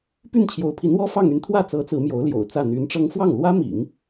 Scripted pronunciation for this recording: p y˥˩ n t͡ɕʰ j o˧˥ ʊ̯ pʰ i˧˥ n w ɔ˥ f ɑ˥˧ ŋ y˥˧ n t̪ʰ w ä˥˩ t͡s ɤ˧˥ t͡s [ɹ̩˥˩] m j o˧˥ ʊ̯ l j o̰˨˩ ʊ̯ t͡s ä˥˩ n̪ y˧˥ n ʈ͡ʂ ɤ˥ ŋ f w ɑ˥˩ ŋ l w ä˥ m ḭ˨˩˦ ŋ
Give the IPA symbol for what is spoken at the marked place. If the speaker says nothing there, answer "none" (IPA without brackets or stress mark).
ɹ̩˧˥